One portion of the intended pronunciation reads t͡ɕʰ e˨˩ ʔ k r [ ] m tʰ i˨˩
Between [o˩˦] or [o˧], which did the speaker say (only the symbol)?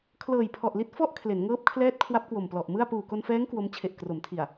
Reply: o˩˦